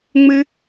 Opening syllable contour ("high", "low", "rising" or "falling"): high